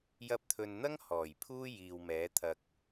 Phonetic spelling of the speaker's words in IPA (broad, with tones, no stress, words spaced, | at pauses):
jɐ˧p̚t̪ʰɵ˨nn̪ɐ˥ŋ hɔː˨˩jpʰuː˥ jiː˨wmɛː˨˥t̪ʰɐ˧k̚